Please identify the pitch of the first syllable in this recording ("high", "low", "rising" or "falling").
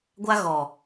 high